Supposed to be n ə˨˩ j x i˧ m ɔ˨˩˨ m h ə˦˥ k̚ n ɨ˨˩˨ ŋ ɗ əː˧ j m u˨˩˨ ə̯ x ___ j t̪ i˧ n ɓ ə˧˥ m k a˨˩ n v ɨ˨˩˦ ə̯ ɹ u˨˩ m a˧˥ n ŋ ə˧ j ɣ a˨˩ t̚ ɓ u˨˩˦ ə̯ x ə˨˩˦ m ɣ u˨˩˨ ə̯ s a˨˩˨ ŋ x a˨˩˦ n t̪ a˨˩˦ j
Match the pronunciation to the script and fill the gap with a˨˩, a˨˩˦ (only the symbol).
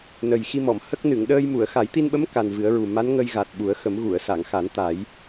a˨˩˦